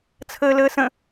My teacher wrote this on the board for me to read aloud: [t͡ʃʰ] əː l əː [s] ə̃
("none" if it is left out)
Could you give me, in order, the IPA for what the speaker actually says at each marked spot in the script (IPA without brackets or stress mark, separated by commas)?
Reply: t͡sʰ, s